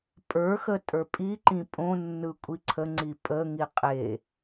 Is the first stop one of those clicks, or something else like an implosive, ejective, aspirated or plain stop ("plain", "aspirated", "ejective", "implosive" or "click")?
ejective